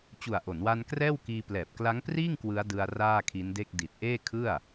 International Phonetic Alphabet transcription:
t͡ɕ u˨˩ a̯ ʔ o˩˦ n w a˧ n k r ɛː˥˩ w k iː˧ p l ɛː˨˩ p̚ k l a˦˥ ŋ p r iː˥˩ ŋ k w ɯ˦˥ a̯ d ɯ˧ a̯ r aː˥˩ kʰ i˦˥ n d e˥˩ k̚ d i˨˩ t̚ ʔ eː˥˩ kʰ ɯ˥˩ a̯

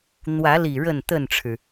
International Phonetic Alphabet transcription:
n̪ w ä˨˦ l i˨˩ ɻ ə˥˨ n t̪ ə˥˨ n ʈ͡ʂʰ ɻ̩˩

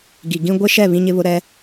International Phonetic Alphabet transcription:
ɡ i˨ ɡ ĩ˦ ɡʷ ɪ˦ ʃ ɛ˦˨ β ĩ˦ ɲ ɪ˦ β ʊ˦ ɾ ɛ˦

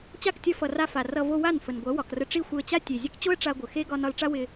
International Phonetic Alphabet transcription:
t͡ɕ a˦˨ k tʲ ʌ˧ f ʌ˨ r a˧ f a˨ r ʌ˧ v o˧ w a˦˨ n f ə˨ n ɡʷ ɐ˨˦ w ɒ˨ k r ə˧ ʈ͡ʂ i˦˨ xʷ ɪ˧ ə̯ t͡ɕ a˦ tʲ e˨ zʲ ɐ˦ k t͡ɕ o˦ ə̯ ʈ͡ʂ a˧ ɡʷ ə˨ x e˦ ɡ ɒ˧ n ɒ˧ l ʈ͡ʂ a˦ w ɪ˧

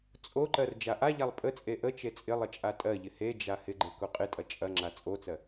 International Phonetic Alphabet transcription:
t͡sʼ o ǃ ɜ r d͡ʒ a ʔ a ʎ a lˠ pʼ ə t͡sʼ e ʔ ə t͡ʃ e t͡sʼ ɪ lˠ ə t͡ʃʼ a tʼ ɜ ʎ ɪ h e d͡ʒ a h ɪ ɡ͡ǃ e k o qʼ ɪ tʼ ɐ t͡ʃʼ ɐ ŋ͡ǁ a t͡sʼ o t͡s ɜ

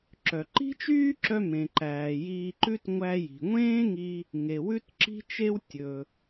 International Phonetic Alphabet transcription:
ǁ œ˩ ǃ i̤˥ t͡ʃ yː˥ ǁ œ˧ m ẽ˩ ǃ æː˩ j iː˧ ǃ ʉ˥ t ŋʷ æ˧ j i̤˩ ŋʷ ẽː˥ ŋ i˧ | ŋ e˩ w ʉ˥ t ǁ i̤˥ t͡ʃ e˥ w tʲ ɵ˩

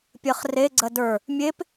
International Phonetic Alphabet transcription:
pʲ ɜ χ r e ɡ͡ǀ ɜ d ə˞ | mʲ e p

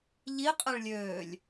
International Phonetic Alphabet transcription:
ʎ i qʼ e ɭ lʲ øː lʲ

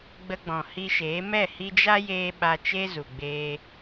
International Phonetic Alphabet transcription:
ɡ͡b ə˧ ɡ͡b ɔ̃˨ h i˧ ʃ eː˨˦ m ɛ˦˨ h i˧ d͡ʒ a˦ j eː˧ ɓ a˧ t͡ʃ e˦ z u˨ ɡ͡b eː˧

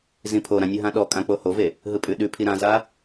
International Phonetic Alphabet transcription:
z ĩ pʰ o ɾ ã nʲ ɯ ɦ ã ɗ ɔ kʼ ã k͡p o h o v e | ɦ ɯ pʼ ʉ ɗ ʉ pʰ i ɾ ã z a

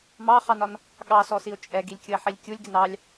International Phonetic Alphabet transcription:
m ɑ χ ɑ n ɒ n | ɠ ɑ s ɔ s i o̯ t͡ʃʼ ɛ ɡ i lʲ kʲ ʊ e̯ ħ i lʲ kʲ u lʲ ɡ ɪ n ɑ lʲ

